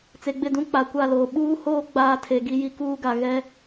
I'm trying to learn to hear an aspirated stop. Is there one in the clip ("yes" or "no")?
yes